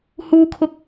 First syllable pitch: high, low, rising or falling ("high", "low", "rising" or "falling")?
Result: high